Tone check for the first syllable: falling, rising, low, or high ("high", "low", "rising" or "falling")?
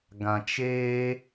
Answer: low